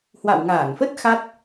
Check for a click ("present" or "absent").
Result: absent